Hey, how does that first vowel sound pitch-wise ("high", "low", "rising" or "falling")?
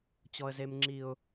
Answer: high